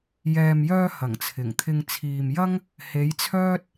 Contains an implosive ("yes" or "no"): no